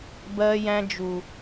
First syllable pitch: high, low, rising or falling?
high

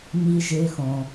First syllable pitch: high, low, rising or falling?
low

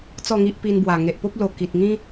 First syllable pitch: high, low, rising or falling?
falling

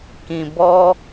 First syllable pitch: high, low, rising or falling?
low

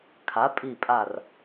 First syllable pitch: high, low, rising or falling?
rising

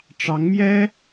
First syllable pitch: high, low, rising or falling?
rising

